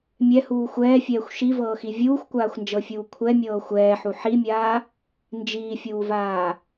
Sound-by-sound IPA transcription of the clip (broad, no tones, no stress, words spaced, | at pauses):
mʲɛhuː xʷɛːfʲɛːxʷ ʃivɤːxi vʲuːxʷkʷaːxʷnd͡ʒɤfʲuː kʷʰɛmʲɤː xʷɛːħu ħimʲaː | nd͡ʒiːfʲuːvaː